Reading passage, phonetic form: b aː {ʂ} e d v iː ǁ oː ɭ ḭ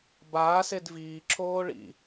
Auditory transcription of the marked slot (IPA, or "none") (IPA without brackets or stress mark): s